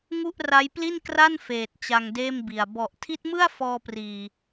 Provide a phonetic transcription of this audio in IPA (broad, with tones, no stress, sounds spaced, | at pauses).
ŋ u˥˩ ʔ r a˦˥ j p l i˥˩ n k r a˥˩ n f eː˨˩ t̚ t͡ɕ a˧ ŋ d eː˥˩ m b i˨˩ a̯ b ɔ˨˩ ʔ tʰ i˦˥ t̚ m ɯ˥˩ a̯ f ɔː˧ p r iː˨˩